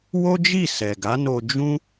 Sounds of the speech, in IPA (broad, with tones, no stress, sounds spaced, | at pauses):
w o˦ d͡ʒ i˦˨ s ɛ˨ ɡ a˨˦ n o˧ d͡ʒ ũ˦